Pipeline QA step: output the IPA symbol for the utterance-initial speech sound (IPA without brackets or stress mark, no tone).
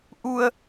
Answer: ʔ